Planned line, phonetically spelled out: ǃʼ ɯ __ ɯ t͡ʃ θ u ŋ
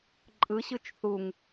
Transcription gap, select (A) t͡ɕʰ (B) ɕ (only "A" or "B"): B